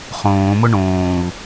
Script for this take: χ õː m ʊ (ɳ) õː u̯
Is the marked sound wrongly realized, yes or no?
no